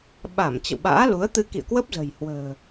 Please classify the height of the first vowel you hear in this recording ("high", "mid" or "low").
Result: low